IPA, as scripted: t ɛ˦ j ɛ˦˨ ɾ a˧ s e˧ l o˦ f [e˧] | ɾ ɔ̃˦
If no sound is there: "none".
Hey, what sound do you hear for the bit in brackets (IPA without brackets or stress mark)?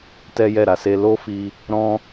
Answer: i˧